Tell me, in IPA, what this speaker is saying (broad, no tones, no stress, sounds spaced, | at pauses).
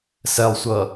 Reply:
s ɛ lˠ sʷ ʌ